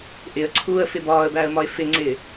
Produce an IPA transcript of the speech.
ʔ ɪ ə̯ ǀʰ uː ə̯ f ɪ b ɒː ə̯ b æ ə̯ m ɒ ɪ̯ f ɪ ŋ͡ǀ ɪ

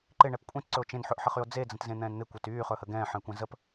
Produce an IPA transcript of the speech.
ǃ ɪ ɳ ɛ p kʷʼ ẽ t ǀ ɵ o̯ t͡ʃ ẽ n ħ ɵ ʔ ħ ə χ y o̯ d͡z e d͡z ə̃ t z ẽ n̪ ɛ̃ː n n̪ ɪ kʷ ɛ t yː χ ɵ h ə ɡ ɛ̃ː ħ ə̃ e̯ kʷ ɛ̃ z ə p

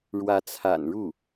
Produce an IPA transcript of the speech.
ɻ w ä˧˥ t͡sʰ a̰˨˩ n ɻ u˥˩

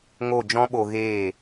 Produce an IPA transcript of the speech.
ŋ o˦˨ d͡ʒ ɔ̃˦ ɓ o˧ ɣ eː˦˨

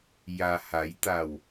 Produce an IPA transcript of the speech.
j a˩ h a˩˧ j t̪ a˧˩ w

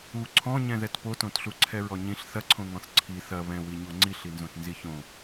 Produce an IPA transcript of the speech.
u ǀʰ ɔ̃ ɲ ɛ̃ ð ɛ t p o t õ t ɬ u ǀʰ ɛ ɹ ɔ ɲ ĩ ɬ θ ɐ ǀʰ õ ŋ ɔ̃ θ ǀʰ i θ ɐ β ɛ̃ w i ɲ o ŋ͡ǀ i ɬ i n z õ t n z i ç õ

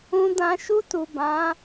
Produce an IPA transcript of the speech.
ũ˧ d ã˧ ʃ u˧ t u˨ b ã˨˦

